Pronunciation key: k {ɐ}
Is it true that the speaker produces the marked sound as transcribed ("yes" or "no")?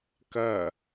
yes